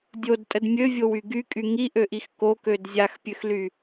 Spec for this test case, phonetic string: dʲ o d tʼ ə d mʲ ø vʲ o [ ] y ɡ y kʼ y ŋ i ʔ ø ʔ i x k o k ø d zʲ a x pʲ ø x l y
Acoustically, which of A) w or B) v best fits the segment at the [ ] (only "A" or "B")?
A